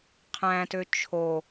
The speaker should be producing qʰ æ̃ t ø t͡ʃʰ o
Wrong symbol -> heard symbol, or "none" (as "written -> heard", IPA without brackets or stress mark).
none